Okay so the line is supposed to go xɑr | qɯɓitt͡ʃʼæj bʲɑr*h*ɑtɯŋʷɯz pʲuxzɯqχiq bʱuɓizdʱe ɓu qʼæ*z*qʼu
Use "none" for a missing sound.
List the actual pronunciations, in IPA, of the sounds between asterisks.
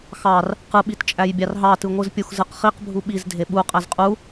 ɦ, z

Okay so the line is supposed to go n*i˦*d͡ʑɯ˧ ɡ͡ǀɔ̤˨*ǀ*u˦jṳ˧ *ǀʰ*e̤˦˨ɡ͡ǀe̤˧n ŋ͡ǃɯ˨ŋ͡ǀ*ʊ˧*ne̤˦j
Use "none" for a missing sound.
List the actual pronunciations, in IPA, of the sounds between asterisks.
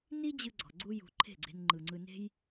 i˦, ɡ͡ǀ, ǃʰ, ɯ˧

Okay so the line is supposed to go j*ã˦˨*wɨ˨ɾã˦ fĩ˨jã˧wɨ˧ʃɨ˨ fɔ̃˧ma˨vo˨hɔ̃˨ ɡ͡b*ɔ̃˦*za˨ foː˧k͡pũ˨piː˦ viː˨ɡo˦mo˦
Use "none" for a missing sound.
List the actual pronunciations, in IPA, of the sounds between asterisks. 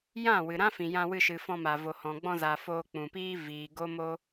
ã˦˨, ɔ̃˧

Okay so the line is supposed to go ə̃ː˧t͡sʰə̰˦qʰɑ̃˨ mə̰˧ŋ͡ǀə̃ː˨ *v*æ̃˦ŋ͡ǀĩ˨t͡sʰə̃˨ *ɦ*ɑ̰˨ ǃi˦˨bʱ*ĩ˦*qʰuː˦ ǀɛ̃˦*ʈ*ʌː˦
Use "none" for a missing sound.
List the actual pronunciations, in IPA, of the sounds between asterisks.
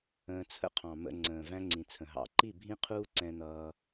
v, ɦ, ĩ˦, n̪

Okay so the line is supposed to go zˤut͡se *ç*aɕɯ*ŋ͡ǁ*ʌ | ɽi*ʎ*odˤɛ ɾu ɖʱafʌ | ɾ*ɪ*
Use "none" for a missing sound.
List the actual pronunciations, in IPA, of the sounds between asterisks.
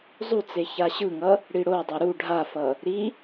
ç, ŋ, ɽ, i

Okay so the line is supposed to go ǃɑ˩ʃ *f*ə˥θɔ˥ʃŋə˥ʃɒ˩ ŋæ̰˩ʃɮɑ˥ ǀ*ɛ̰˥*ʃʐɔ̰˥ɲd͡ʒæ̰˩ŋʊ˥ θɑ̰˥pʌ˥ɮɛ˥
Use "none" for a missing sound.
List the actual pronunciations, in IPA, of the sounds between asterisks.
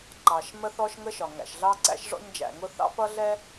m, æ̰˥

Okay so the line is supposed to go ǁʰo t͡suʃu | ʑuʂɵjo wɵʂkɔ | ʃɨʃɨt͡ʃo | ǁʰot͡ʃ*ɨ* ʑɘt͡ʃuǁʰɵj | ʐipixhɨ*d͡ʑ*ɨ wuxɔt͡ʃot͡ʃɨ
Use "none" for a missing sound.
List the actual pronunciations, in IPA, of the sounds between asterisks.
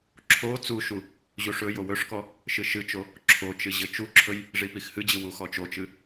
ɨ, d͡ʑ

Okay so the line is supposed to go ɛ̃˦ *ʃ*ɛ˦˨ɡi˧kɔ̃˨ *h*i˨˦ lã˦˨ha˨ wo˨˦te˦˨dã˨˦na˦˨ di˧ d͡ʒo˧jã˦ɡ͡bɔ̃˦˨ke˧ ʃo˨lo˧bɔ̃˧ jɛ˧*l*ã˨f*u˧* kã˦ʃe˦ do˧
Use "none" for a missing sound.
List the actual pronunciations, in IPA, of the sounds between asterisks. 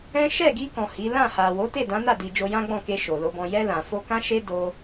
ʃ, h, l, o˧

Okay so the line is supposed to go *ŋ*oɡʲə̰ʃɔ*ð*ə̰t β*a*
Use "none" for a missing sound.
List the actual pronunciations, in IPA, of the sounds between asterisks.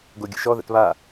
ɡ, ð, a

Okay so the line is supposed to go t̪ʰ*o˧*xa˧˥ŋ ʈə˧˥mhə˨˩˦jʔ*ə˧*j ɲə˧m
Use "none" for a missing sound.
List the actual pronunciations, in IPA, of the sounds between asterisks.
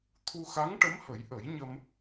u˧, ə˨˩˦

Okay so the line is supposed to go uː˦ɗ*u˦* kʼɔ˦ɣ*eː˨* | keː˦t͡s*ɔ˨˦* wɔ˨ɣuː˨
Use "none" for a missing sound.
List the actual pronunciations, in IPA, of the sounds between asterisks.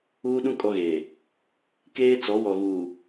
ũ˦, eː˨, ɔ˨˦

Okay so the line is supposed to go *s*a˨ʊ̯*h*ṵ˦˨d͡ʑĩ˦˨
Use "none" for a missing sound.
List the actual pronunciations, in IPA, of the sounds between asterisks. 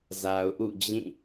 z, ʔ

